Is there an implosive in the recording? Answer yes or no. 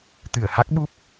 yes